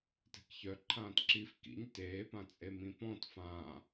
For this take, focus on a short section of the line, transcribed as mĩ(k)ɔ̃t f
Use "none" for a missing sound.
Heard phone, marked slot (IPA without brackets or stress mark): p